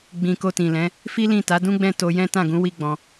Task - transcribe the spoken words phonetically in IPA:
ɡ͡bĩ˨ko˧tĩ˨lɛ̃˨˦ | fi˦lĩ˦˨ ta˨˦dũ˦ɡ͡bɛ̃˦˨ to˧jɛ̃˦ tã˦˨ɡũ˨˦ wi˦ɡ͡bɔ̃˧

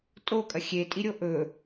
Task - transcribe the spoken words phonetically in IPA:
tʼokʼɐ xʲetʼiɾʲo ʔɵ

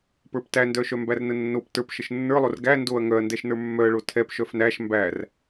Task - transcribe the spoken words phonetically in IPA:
pə˞ptændœʃœ mbærnənːop tə˞pʃəʃ nːə˞lˠor ɡæ ndoɐ̯ ŋœɐ̯ndɛʃ nə˞mːœɐ̯ɭo tʰɛp ʃœfnæʃ mbær

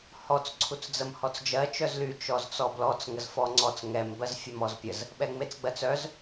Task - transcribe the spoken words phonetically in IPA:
hɔt͡s ǀʰut͡sd͡zəmhɔt͡sd͡ʒɜ t͡ʃœzly t͡ʃɔzt͡sɔblɔt͡s ŋəzfɔŋ͡ǀɔt͡s ŋɛm bɜzfʲœmɔzpʲəz | ɓɛŋ͡met͡sɡ͡bɜt͡sœz

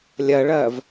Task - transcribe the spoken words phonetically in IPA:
lʲɜɭɜːv

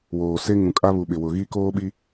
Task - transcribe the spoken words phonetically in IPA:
woː˨se˦ ŋũ˨kʼa˦βu˨ ɓɪ˨ wʊ˨ɣi˦ koː˦ɓi˦

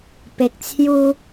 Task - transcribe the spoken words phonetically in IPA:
pe˨k̚t͡sʰju˧

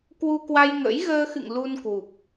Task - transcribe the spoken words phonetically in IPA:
kwu˧kwa˧j ŋə̰˧˥j ɣəː˧xɨ̰˧˨ŋ lu˧nkwu˨˩p̚

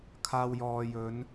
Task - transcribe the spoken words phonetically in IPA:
kʰaː˧w jɔː˨jɵ˨˧n

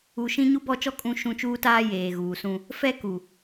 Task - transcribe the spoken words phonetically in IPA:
u˨ʃĩ˦ ɲu˦bɔ˦˨t͡ʃɔ˦ kʼũ˦ ʃũ˦˨t͡ʃuː˦taː˦ jeː˨ɣuː˨sũ˦ | fɛ˦ku˨

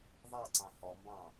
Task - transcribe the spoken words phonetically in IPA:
ðˤɑǀɑ̃ hɔmbɑ̃

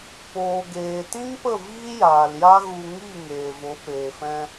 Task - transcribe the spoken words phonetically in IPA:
poː˨ɡeː˨tĩ˦ŋpə˦˨ viː˦jaː˨lja˦ɣu˧ ŋi˦˨ ŋeː˨vo˨˦peː˨fɛ̃˦

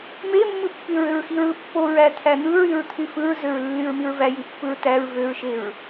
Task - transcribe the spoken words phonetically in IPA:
memːɯpːyɹøɹ xiɹɯpːoɹæ t̪ʰæn̪ɯɹyɹt̪ʰy fɯɹzøɹ lːyɹmiɹvæ jipːɯɹtæɹ vøɹʃeɹ

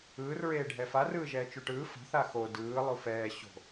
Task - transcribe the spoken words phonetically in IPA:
ɯːr ɹeːɖʱɛfa rɯːʒɛːt͡ʃuʈɯː fa̤θ axo dɯː lˠufɛː ɕo̤

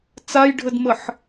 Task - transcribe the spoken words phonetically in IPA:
t͡sajɖʱədməħ

